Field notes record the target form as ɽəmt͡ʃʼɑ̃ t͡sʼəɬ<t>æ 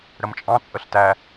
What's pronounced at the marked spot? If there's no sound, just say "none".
t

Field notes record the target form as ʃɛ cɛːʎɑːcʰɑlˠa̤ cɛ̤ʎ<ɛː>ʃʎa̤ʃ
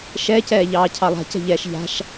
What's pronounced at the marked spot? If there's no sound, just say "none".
ɛː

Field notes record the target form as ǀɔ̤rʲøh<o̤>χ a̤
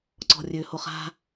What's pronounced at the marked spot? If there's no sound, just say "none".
o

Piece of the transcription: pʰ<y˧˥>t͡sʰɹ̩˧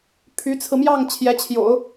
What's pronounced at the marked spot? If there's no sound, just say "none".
y˧˥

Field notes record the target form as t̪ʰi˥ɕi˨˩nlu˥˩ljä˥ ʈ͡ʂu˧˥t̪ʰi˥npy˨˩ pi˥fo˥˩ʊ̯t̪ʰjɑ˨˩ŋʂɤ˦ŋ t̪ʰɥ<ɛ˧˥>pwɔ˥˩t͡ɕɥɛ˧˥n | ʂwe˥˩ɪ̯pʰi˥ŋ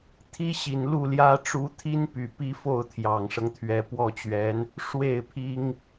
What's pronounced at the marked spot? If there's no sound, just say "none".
ɛ˧˥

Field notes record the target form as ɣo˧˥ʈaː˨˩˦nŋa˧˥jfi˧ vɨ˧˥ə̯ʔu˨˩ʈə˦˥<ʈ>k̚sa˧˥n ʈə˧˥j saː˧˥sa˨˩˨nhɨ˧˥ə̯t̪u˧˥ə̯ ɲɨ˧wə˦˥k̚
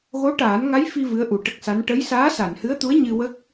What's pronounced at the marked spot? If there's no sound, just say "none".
none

